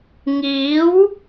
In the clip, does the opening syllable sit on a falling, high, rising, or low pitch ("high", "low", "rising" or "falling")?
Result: rising